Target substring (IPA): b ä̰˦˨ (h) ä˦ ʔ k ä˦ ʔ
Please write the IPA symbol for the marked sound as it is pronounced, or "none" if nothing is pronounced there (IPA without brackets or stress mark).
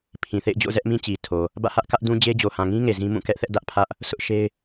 h